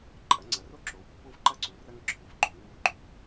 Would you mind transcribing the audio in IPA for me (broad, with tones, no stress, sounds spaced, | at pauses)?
ǃʼ ɐ˩˥ ŋ͡ǀ ɐ˩˥ r o˥ ǁ o˩˥ w pː o˥ v ǃ ɐ˥ ǀ u˩˥ r ɐ˥ ŋ ǁʰ o˩ v ɡ͡ǃ o˩˥ ŋ w u˧ ɡ͡ǃ ʉ˩